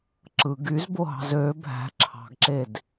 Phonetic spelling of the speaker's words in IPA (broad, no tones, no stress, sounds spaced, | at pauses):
ǁ ɯ ɡ y z b o ɦ ɑ̤ z ø bʱ æ̤ ǁʰ ɑ̤ ɡ ǁ e d